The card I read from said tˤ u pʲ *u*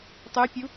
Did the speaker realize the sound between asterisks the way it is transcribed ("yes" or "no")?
yes